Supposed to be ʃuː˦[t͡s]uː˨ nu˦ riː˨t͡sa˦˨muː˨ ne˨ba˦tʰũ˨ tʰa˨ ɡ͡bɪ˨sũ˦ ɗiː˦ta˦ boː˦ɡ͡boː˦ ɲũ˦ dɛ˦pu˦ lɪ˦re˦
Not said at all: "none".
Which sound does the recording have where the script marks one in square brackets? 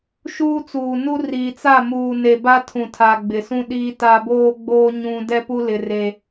t͡s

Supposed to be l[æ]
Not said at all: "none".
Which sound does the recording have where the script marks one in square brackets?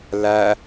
æ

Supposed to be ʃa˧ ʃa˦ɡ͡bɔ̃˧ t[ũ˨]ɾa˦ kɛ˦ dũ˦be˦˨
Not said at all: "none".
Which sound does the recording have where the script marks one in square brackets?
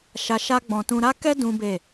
ũ˧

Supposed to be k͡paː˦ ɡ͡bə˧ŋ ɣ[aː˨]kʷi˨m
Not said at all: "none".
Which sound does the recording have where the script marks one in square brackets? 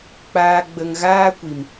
aː˦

